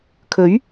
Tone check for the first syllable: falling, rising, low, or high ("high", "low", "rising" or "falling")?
rising